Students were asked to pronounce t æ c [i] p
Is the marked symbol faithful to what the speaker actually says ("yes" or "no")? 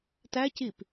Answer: yes